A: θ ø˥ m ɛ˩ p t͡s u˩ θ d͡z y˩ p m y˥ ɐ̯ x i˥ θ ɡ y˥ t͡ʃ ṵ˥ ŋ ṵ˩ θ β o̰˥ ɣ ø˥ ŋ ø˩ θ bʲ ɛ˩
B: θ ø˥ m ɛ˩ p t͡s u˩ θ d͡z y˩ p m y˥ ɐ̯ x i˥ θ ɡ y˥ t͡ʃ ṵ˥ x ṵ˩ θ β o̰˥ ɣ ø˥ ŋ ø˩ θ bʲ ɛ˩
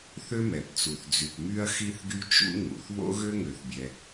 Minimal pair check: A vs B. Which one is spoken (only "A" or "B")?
A